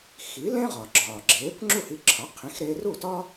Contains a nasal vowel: yes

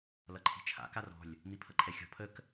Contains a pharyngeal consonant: no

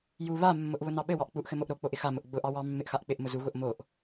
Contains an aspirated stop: no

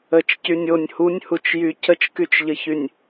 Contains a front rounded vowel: yes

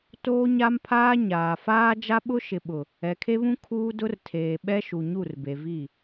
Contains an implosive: yes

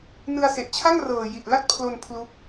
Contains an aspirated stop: yes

